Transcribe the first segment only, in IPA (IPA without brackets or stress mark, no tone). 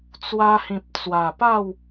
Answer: t͡s